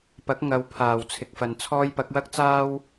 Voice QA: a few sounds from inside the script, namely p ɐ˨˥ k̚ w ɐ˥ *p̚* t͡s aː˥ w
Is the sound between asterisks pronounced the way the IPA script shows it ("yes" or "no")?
no